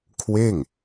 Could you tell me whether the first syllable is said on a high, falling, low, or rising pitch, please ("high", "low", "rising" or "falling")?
falling